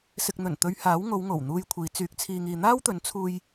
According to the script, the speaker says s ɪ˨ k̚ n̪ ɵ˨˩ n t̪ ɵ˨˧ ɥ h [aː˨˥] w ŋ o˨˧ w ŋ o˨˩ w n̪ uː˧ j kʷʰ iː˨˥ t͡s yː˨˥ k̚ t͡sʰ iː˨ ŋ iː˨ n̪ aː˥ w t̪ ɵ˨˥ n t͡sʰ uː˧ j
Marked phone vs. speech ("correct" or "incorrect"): correct